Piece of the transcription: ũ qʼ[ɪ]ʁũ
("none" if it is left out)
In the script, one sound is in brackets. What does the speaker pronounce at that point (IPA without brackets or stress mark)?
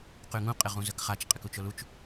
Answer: ɪ